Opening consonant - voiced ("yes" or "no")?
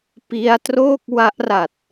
no